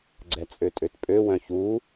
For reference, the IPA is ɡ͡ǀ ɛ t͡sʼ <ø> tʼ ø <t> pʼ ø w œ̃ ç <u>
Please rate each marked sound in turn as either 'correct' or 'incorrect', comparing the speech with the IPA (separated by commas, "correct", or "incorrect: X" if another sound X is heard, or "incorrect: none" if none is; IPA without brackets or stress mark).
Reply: correct, correct, correct